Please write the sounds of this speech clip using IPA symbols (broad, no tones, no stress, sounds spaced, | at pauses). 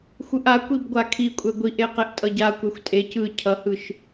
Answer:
xʷ ɯ ʔ a kʷ i b ɡʷ a kʰ i kʷʼ ɛ ɡʷ i ʔ e q e ʔ tʼ ʌ ɟ a kʷ ɛ xʷ tʼ e c ɯ cʰ ʌ h ɯ ʃ